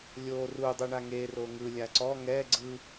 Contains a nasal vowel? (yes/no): no